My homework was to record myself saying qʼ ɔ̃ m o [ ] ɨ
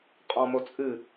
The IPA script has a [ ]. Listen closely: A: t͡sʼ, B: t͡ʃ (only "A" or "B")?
A